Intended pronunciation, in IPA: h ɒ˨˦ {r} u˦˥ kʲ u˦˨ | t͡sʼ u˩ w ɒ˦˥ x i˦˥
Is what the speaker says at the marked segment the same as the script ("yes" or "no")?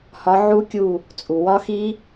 no